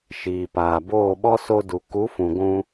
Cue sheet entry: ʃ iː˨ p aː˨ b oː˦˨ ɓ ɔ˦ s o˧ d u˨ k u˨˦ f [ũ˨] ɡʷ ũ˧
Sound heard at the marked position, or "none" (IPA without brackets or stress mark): ũ˨